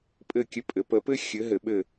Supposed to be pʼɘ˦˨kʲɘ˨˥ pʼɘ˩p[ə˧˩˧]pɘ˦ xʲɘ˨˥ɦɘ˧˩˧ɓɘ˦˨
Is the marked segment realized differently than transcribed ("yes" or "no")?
no